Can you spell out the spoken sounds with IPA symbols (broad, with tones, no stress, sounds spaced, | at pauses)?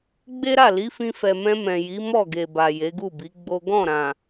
ɡ͡b e˦ ɾ a˦˨ l i˨˦ f ĩ˧ f ɛ˨ m ɛ̃˧ m ɛ̃˨ j i˨˦ m ɔ˦˨ ɡ e˨ b a˨ j e˨˦ ɡ u˦˨ b i˨˦ ɡ͡b o˦ ɡ ɔ̃˦˨ ɾ ã˨